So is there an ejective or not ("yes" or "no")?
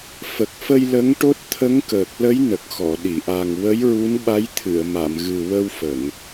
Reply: no